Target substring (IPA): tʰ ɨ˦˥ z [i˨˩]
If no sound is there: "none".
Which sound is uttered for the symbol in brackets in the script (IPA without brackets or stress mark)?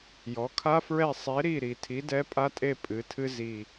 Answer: i˨˩